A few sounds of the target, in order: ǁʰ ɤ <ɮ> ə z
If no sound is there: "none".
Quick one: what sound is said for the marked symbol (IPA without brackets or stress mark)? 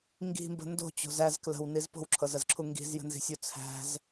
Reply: z